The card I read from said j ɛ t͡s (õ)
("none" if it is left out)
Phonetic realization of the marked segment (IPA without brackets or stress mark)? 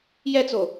o